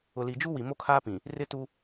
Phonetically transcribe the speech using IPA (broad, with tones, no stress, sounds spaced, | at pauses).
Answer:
ʊ˨ l i˨ d͡ʒ u˦ w i˨ m o˦ kʰ aː˦ p ĩ˨ | r ɪ˦ t u˦